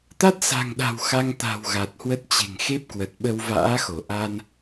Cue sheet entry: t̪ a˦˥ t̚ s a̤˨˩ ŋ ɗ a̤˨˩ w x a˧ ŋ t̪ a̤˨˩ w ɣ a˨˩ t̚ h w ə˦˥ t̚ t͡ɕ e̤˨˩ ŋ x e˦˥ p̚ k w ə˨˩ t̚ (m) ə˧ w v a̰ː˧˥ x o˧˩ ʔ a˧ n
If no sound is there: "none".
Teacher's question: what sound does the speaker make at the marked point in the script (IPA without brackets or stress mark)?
ɓ